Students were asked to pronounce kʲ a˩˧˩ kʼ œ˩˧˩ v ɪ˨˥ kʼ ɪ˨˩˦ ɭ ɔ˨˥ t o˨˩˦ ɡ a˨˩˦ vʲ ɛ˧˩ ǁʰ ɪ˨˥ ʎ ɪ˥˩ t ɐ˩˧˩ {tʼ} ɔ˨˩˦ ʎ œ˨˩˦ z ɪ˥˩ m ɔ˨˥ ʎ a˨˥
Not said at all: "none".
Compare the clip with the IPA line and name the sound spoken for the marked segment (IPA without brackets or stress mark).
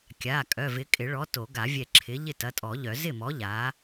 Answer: tʼ